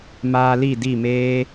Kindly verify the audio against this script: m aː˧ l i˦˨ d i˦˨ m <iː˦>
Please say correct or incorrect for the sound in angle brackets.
incorrect: eː˦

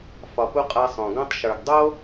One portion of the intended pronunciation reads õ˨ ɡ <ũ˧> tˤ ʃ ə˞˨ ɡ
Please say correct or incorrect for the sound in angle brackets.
incorrect: õ˧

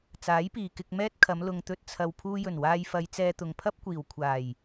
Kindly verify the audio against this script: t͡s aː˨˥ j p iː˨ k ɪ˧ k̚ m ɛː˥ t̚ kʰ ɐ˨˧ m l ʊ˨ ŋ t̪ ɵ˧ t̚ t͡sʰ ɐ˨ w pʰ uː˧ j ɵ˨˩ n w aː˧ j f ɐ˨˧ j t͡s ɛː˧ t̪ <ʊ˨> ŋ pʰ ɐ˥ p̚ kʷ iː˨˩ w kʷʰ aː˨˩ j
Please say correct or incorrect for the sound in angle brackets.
correct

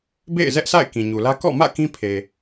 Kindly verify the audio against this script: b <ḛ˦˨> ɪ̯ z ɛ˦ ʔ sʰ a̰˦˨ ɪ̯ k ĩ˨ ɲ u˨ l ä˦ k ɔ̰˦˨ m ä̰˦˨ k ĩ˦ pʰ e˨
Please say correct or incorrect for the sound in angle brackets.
correct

